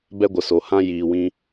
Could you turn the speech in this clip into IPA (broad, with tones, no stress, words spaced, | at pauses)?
bɛ˧ɡʷə˨so˨hã˧ jiː˧wĩ˦